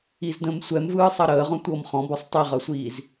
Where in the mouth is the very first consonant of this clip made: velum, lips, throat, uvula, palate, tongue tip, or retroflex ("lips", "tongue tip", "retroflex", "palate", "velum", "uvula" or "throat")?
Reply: tongue tip